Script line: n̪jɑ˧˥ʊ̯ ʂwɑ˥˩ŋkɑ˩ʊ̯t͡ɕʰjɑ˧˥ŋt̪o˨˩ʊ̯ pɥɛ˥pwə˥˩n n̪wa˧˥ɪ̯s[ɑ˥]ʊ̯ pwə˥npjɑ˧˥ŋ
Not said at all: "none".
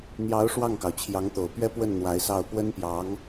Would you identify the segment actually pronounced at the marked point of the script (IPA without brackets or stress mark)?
ɑ˥˩